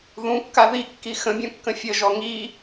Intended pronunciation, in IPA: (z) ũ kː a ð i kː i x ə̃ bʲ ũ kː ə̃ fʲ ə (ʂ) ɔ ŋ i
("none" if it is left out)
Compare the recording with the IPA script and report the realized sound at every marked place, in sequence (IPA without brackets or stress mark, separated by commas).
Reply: ð, ʒ